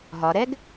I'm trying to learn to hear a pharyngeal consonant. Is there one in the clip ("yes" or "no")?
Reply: no